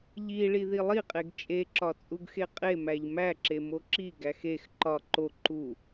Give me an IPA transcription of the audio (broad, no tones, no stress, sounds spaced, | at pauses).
ʎ i ɭ i ð i lˠ i qʼ e ɡ t͡ʃʼ e ǁ ɒ t͡sʼ u ɡ x e qʼ e m æ ʎ m æ ǁ e m o ǁ i ɡ æ x e x ǃ ɒ ǃ o ǃ u